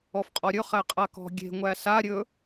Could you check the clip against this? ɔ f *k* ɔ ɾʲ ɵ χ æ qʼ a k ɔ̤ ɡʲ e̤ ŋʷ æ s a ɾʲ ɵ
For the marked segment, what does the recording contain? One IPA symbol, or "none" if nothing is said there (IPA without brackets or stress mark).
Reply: qʼ